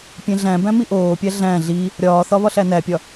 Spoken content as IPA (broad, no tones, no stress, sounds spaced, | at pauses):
pʲ ẽ ɮ æ̃ b æ̃ m i ʔ oː pʲ æ ɮ æ̃ ɮ i | ɾʲ ɒː θ ɒ β ɒ ɬ æ n æ pʲ ɒ